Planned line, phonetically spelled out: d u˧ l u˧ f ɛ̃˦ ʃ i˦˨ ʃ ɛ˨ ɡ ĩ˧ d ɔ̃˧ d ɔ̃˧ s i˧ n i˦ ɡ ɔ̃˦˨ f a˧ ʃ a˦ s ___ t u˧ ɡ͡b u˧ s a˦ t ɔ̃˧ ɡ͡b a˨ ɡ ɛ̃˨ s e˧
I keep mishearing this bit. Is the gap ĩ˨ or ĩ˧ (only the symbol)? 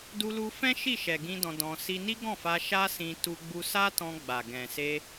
ĩ˧